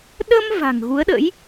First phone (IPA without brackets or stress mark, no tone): ɗ